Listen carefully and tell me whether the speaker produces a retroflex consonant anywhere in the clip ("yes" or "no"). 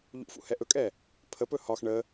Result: yes